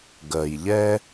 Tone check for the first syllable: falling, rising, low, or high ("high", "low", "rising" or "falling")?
low